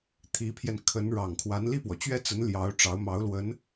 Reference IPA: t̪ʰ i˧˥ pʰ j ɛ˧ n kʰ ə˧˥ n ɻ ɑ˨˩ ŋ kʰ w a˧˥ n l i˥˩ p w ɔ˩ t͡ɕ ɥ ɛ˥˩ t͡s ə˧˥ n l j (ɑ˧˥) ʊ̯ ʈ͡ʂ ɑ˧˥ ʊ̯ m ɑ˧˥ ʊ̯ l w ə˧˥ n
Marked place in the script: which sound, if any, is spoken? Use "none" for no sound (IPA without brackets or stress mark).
ɑ˧˥